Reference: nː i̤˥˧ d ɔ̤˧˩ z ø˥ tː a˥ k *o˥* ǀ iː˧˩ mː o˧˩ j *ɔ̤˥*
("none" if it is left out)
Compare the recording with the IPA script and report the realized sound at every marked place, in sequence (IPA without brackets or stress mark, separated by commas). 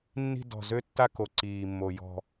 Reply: o˧, ɔ̤˥˧